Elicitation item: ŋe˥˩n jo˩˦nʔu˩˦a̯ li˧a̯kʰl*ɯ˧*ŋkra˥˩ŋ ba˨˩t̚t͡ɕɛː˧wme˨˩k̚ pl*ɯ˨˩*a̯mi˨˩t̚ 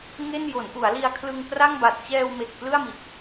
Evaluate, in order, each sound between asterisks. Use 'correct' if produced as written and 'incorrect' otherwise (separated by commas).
correct, incorrect